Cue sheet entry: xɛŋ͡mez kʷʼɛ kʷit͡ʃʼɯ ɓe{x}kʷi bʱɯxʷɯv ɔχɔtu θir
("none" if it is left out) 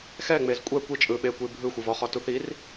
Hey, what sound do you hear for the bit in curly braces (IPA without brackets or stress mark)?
none